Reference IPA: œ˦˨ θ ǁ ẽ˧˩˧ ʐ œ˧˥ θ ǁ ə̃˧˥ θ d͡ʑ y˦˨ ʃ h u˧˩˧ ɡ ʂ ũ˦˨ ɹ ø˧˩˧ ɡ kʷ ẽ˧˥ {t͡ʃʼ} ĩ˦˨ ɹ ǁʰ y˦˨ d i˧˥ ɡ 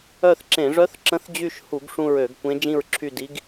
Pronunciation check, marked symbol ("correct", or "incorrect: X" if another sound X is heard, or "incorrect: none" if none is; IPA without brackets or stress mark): incorrect: d͡ʒ